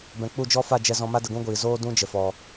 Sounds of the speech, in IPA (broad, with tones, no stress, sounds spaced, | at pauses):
b ɛ̃˨ k͡p u˦˨ d͡ʒ ɔ˦ f a˦˨ d͡ʒ ɛ˧ z ɔ̃˧ m a˦ d ə˧ ɡ ũ˦ ɡʷ iː˨ z oː˦ d ũ˦ d͡ʒ ə˨ f ɔ˨